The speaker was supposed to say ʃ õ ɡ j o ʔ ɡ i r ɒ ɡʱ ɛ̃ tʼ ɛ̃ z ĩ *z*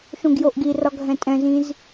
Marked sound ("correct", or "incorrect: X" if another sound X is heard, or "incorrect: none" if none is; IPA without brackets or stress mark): correct